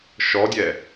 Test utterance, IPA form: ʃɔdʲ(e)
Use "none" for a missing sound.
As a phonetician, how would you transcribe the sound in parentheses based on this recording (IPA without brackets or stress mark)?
ɛ